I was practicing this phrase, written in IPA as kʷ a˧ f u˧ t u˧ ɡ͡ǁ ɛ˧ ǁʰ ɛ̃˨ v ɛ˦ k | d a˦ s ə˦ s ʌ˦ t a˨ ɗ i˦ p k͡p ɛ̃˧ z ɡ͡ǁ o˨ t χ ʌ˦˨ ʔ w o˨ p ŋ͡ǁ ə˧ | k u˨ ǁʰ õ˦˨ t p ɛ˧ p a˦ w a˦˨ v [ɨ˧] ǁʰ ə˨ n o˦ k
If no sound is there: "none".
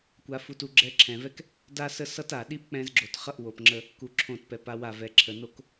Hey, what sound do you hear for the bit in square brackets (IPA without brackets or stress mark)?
ɛ˧